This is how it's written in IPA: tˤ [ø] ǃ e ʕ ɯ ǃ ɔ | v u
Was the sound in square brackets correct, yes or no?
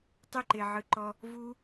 no